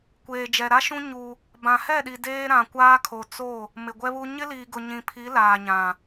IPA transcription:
kʷ eː˨ d͡ʒ ɛ˨ ɾ a˦ ʃ ũ˦ ɲ u˦ | b ã˨ h ɛ˦˨ ɗ i˨ d eː˦ ɾ ã˨ kʷ aː˦ kʰ o˨ t͡s o˦˨ | m ɪ˨ ɡʷ ɛ˦ β u˦ ɲ ɪ˦ l iː˨ ɡ ʊ˨ ɲ ĩ˨ pʰ i˨˦ l aː˨ ɲ ã˨

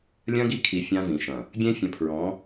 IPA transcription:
lʲ ɐ̃˦ ɡ i˦ kʰ i˨ fʲ ã˦ v ĩ˨ ʃ ɐ̃˨ | ɡʲ ẽ˦ fʲ ɐ̃˨˦ pʰ ɹ ɔ̃˨˦

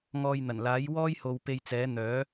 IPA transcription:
ŋ ɔː˧ j n̪ ɐ˨˩ n l aː˨˥ j w ɔː˥ j h o˨ w p e˧ j t͡s ɛː˨˥ n̪ œː˨˥

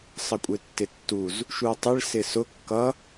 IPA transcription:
sˤ ə kʷʼ ɪ tː ɪ tː u z | ʃ u o̯ tˤ ɪ ɭ s ɪ s ʊ kː ʌ

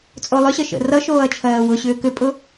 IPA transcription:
t͡sʼ o lˠ ʏ ɕ ə ʃ ə̰ r ʌ ʃ oː ɐ̯ t͡ʃʰ ɜː w ʊ ɕ ʏː k ʏ pʼ ʊ

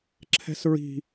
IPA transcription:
ǁʰ ɛ̤ s ɹ i̤

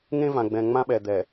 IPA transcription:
ŋ ẽ˦ v ã˨ ɡ͡b ɛ̃˨ ŋ͡m ã˦ ɓ ɛ˨ d̪ ɛ˨

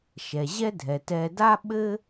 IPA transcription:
ʃ ɛ˩ ʑ ɛ˥ dʱ ɛ˩ t ɛ˨ d a˥ ɓ ɘ˥

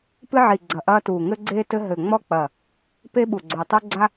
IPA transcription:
p ɨ˥ ʕ i˧˩ ɡ͡ǀ ɐ˧˩ ʔ ɐː˥ t uː˧˩ ŋ ɘ˥ ɡ͡ǀ eː˥ t ɘ˥ ɦ ɘ˧˩ ŋ͡m ɔ˥ k͡p ɐ˧˩ | p e˥ ɓ u˧˩ ɡ͡ǀ o˧˩ tˤ u˥ ɡ͡ǀ a˥

